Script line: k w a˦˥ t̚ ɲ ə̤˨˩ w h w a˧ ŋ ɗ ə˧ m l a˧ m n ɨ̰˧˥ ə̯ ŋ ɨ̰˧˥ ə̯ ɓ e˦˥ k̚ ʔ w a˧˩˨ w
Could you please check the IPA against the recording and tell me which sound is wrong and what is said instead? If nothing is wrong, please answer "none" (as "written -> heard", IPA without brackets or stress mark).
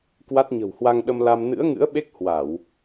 ʔ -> h